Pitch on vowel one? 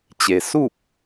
low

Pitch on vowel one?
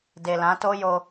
low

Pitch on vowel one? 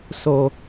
low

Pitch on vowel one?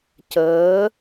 rising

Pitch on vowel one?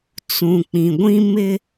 low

